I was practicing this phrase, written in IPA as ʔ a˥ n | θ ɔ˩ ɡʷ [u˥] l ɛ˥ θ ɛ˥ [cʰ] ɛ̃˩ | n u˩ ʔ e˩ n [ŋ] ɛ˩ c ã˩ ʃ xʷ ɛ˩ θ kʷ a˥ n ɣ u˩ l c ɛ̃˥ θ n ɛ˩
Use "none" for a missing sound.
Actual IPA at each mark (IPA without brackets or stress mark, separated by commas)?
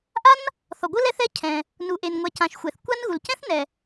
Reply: ɯ˥, cʰ, ŋʷ